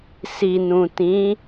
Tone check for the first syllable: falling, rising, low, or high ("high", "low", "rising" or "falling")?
low